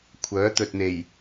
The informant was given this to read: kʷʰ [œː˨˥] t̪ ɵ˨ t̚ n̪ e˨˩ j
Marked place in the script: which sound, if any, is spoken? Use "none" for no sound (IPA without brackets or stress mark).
œː˨˥